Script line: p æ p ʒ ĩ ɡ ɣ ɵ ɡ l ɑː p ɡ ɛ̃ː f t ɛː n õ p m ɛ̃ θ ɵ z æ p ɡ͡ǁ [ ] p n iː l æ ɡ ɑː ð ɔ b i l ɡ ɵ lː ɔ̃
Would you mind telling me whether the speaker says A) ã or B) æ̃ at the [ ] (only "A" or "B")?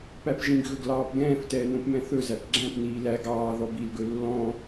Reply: B